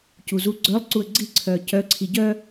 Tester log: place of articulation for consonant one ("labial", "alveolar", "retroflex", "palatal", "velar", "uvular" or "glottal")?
palatal